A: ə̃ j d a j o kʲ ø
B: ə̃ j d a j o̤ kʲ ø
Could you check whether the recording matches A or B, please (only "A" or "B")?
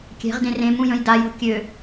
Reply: B